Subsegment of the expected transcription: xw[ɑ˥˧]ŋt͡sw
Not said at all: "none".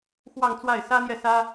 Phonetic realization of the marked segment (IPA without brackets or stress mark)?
ɑ˥˧